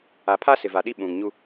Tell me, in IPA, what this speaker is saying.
a˨ pʰ a˦ s ɪ˨ v a˨ ɗ i˦ ɓ ũ˨ ŋ ɲ u˦

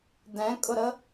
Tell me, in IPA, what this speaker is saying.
d ɛ̃ kʼ ʊ ɾ ə

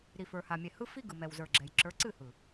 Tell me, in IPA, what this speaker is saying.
ɾ i˨ f ə˞˨ h a˨ mʲ ɛ˨ h ɯ˦ f i˦ ɡ ɯ˨ m ɛ˨ w z ə˞˨ ɡ͡ǁ ɛ˨ j ǁ ə˞˨˦ ǀ ɨ˦˨ h ɯ˨

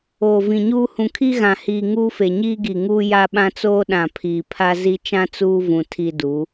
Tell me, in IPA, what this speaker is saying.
oː˨ v ĩ˨ ɲ uː˦ h ũ˨ kʰ i˦ ɣ ã˨ h iː˨ ŋ uː˦ f e˨ ɲ iː˦ ɡ i˨ ŋ uː˦ j a˦ ɓ ã˦ t͡s oː˦ ɗ ã˨ pʰ iː˨ pʰ a˦ z i˦ t͡ʃ ã˦ t͡s uː˦ v ũ˨ tʰ i˦ d u˨˦

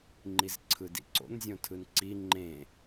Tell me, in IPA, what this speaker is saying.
ŋ͡ǃ i z ǀʰ ɯ d ḭ ǀ o̰ n zʲ õ tʰ ɯ n ǀ i ŋ͡ǃ ẽ

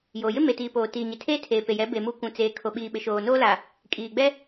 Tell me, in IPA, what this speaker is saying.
j oː˨ j ɪ˦ m e˨ t iː˨ p oː˨ t iː˨ ɲ ɪ˨ tʰ eː˦ tʰ eː˨ p e˨ j ɛ˨˦ b e˨ m u˨˦ kʷ ũ˨ t͡s eː˨ kʰ o˨ ɓ iː˨ ɓ ɪ˨ ʃ oː˨ n oː˦ l a˨ | kʼ iː˨ ɡ͡b ɛ˦

